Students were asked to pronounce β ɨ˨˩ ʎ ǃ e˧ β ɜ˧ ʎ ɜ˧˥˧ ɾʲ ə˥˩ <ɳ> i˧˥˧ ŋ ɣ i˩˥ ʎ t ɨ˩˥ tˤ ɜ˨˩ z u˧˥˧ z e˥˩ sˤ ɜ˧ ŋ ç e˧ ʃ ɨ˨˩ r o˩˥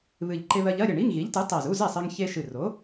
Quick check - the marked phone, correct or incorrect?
correct